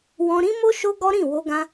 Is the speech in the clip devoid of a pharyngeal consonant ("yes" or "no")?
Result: yes